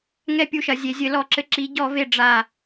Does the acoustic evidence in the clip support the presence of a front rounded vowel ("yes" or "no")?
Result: no